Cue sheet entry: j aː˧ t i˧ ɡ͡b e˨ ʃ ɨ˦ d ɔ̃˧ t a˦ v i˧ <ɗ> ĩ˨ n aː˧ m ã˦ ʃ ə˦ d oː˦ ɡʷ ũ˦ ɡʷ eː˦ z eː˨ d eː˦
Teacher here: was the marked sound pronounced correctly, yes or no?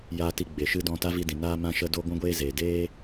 no